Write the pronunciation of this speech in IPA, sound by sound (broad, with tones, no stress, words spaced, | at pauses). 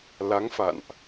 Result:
la˨˦ŋfa̰˧˨nʔ